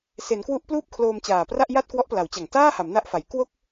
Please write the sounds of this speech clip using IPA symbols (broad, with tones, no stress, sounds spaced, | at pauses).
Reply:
s e˩˦ n k w u˦˥ ʔ p l uː˥˩ p̚ kʰ l oː˧ m t͡ɕ aː˨˩ p r a˥˩ ʔ j a˥˩ t̚ k w ɔ˦˥ ʔ p l a˩˦ w t͡ɕ a˨˩ ŋ t aː˥˩ h a˩˦ m n a˦˥ ʔ f a˩˦ j k w o˥˩ k̚